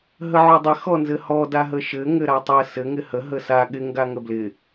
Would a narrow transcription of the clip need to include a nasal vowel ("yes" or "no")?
no